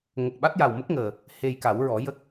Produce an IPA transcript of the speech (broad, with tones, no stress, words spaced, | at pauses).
ŋə˨˩k̚ɓa˦˥t̚ja˨˩wmə˦˥k̚ ŋəː˨˩ | he˧jka˨˩˦wɹɔ˨˩˦ jə˦˥k̚